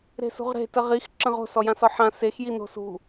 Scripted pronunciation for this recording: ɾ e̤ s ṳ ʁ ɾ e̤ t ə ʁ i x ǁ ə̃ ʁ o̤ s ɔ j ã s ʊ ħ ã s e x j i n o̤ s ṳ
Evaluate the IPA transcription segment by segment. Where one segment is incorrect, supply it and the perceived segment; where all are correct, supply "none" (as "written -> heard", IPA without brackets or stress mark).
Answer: ʊ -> ɔ